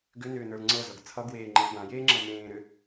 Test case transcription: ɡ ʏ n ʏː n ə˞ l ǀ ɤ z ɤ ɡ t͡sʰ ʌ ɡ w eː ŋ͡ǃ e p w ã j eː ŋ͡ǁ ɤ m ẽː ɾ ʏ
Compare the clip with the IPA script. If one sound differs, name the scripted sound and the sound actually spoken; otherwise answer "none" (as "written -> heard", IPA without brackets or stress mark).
ǀ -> ŋ͡ǀ